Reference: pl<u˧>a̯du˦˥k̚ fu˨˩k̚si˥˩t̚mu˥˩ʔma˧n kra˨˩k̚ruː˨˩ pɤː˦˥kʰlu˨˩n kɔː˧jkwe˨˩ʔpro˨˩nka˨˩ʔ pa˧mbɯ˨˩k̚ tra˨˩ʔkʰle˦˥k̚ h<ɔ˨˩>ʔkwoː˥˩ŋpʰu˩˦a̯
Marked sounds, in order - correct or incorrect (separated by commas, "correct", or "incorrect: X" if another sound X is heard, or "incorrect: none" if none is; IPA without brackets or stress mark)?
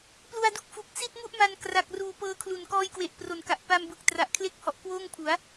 correct, correct